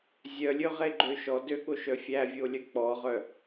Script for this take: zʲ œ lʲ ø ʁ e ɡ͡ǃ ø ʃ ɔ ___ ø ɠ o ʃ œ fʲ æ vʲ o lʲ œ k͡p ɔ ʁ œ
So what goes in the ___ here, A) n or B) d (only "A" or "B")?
B